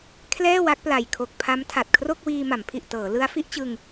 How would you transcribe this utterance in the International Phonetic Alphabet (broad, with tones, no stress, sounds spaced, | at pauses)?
kʰ l ɛː˥˩ w a˦˥ k̚ p l a˨˩ j kʰ o˨˩ k̚ pʰ a˦˥ m tʰ a˨˩ t̚ kʰ r o˥˩ k̚ w iː˧ m a˩˦ m pʰ i˨˩ ʔ t ɤː˩˦ l ɯ˦˥ a̯ f i˦˥ ʔ t͡ɕ ɯ˧ ŋ